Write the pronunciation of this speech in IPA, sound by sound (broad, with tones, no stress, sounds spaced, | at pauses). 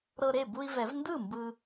ɾ ɤ˧ ɾ e˥˩ b u˧ i̯ v ɛ˨˩˦ v n d ɯ˥˩ m b ɯ˧